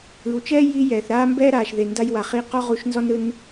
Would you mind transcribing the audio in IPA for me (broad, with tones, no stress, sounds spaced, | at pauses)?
ɯ˩ w t͡ʃ ɛː˥ j i˧ j ɛː˩ θ ɾ aː˥ m b ɛː˥ ɾ aː˩ ʃ ð e˩ n d a˧ j w a˩ χ i˧ q ɔ˥ ʁ u˧ ʃ n z ɔ˥ n ɾ ɯ˧ n